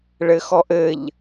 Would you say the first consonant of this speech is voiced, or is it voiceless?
voiced